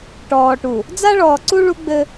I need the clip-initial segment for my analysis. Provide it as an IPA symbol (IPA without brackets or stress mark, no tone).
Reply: ʈ